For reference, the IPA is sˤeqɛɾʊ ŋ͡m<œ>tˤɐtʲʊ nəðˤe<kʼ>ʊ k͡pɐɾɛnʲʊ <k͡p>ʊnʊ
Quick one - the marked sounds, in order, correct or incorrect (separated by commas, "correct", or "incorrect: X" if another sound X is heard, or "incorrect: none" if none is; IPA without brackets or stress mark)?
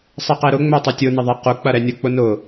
correct, incorrect: q, correct